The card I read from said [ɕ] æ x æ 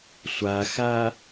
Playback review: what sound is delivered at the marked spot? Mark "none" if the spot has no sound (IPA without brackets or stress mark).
sʷ